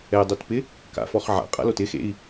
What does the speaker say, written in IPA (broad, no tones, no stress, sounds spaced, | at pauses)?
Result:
ɛ dˤ o t p ɪ | k a̰ f ɔ χ ʕ a̰ qʼ a̰ l o t ɪ x ḛ i̯